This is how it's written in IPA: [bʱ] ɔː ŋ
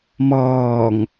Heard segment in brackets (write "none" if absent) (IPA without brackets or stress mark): m